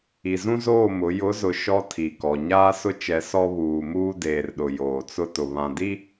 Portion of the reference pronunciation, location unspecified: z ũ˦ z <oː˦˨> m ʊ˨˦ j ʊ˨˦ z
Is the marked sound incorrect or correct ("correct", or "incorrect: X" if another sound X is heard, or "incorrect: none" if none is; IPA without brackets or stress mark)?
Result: correct